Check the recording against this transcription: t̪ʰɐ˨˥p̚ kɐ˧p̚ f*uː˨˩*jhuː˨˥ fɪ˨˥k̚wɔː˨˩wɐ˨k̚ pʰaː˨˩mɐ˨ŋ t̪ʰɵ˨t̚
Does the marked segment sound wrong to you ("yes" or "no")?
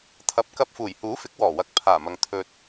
no